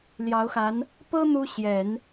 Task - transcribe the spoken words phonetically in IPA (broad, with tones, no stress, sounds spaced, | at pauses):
l j ɑ˧˥ ʊ̯ x a˧˥ n | p ɤ˥ n̪ u˥ ɕ j ɛ˨˩˦ n